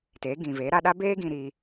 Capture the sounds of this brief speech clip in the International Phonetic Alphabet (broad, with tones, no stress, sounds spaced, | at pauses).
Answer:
t e˨˦ ɡ ĩ˨ v e˨˦ ɾ a˧ ɗ a˦ b eː˦ ɡ ĩ˧ ɾ iː˧